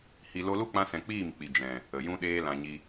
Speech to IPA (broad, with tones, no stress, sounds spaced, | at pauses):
h i˨ l o˧ l u˦ k͡p ã˧ s ɛ̃˨ k͡p iː˦˨ m k͡p i˨ d͡ʒ ɛ̃˨ | ə˨ j ũ˦ ɗ eː˦ l ã˨ ɲ i˧